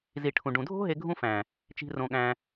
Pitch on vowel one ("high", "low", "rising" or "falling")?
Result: low